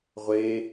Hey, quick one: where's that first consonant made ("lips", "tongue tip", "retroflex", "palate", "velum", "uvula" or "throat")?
uvula